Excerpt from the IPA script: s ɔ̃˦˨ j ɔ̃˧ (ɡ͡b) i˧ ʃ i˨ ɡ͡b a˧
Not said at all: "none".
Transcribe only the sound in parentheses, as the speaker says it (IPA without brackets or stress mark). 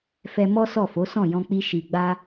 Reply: k͡p